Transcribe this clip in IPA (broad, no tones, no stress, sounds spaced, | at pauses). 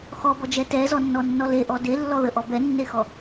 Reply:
x ɔ b ɔ d͡ʒ ɛ t ɛ z ɔ nː ɔ nː ɔ l e ʔ ɔ d e lː ɔ ð ə ʔ ɔ b ɛ nː e x ɔ